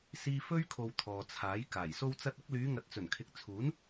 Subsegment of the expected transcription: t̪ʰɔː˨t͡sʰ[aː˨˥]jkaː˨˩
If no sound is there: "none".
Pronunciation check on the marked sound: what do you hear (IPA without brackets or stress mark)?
aː˨˥